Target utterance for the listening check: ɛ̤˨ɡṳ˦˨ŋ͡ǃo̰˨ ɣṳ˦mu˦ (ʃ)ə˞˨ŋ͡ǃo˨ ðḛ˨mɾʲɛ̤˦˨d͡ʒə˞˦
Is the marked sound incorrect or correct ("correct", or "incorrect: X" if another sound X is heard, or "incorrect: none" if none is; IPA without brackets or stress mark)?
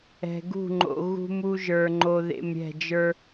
incorrect: ʒ